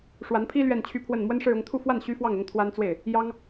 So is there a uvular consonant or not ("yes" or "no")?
no